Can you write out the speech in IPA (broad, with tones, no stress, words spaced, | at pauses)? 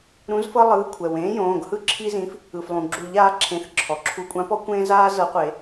ɾũ˨˥zfɤ˦ lˠɯː˨˥ kʷʰɛ˩wẽː˨˥jõː˩˧˩ɡhɯ˦ ǁʰi˦zĩ˨˥f | ɯ˩flˠũ˩ ɡ͡ǁu˨˩˦ʎaː˨˥ ǁʰẽ˩˧˩θ ǁʰɔ˩ ǁʰu˨˩˦kʷʼã˨˥pɔ˦ kʷẽː˦ zaː˦ zɤ˨˩˦qʷe˨˩˦